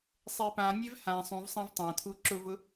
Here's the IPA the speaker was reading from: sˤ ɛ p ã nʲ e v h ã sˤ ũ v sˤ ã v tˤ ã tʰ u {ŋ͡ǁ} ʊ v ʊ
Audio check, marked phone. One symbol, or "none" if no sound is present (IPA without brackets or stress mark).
ǁ